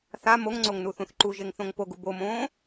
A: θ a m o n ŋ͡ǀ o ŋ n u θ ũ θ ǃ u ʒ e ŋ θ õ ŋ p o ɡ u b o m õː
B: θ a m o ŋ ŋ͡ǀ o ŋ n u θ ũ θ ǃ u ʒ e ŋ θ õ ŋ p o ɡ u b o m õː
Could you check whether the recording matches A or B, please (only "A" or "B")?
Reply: B